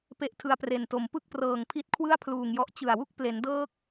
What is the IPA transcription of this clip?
p e˥˩ ʔ tʰ ɯ˧ a̯ p r e˨˩ n t o˨˩ m p ɯ˥˩ k̚ p r ɤː˨˩ ŋ pʰ i˦˥ t̚ kʰ w ɯ˥˩ a̯ pʰ l uː˨˩ ŋ j ɔ˦˥ ʔ t͡ɕ ɯ˨˩ a̯ w u˥˩ k̚ p l e˩˦ n d ɤː˥˩ k̚

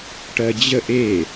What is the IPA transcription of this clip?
ʈ ɜ d͡ʑ ə ʔ e

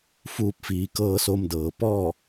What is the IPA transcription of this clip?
f uː˧ p̚ f iː˩˧ k ɤː˧ s o˧ m d ɤː˩ p ɔː˥˨

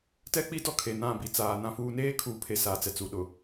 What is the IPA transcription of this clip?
t ɛ˦ k͡p i˦ d ɔ˦ kʰ e˨ n ã˦˨ b i˨ t͡s aː˨ n ã˦ f uː˦ n eː˦ kʰ uː˨ pʰ e˨ s aː˨ t͡s ɛ˨ t͡s u˨ ɗ ʊ˨

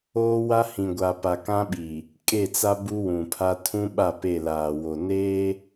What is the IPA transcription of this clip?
oː˦ w a˦ h ĩ˨ ɡʷ a˨ p a˨ k ã˦ ɓ i˨ | kʼ e˦˨ t͡s a˦ b u˦ w ũ˨ pʰ a˦ tʰ ũ˦ ɓ a˦˨ p e˦˨ l aː˨ w o˨ n e˦

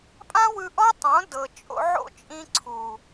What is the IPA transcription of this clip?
pʼ ã˦ w ɯ˧ ʔ ɔ˦ tˤ õ˨˦ d ɤ˨ t͡ʃʼ o̰˧ ʕ o̰˦ t͡ʃʼ ĩ˧ ǀʰ u˨

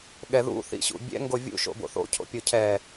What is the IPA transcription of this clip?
ɠ ɛ ð ṵ θ ḭ ɕ ṵ bʲ ɛ̰ ŋ ɡ o vʲ ṵ ʃ o̰ b o̰ θ o̰ cʰ o̰ pʲ o cʰ ɛ

